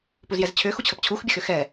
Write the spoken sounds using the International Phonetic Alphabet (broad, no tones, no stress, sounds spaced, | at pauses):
p u z j ɛ z t͡ɕʰ ʏ x u t͡ɕʰ ə p t͡ɕʰ u x bʲ ə x ʏ x ɛ